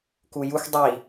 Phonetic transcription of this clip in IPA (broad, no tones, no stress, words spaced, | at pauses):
kujuxʷ dˤi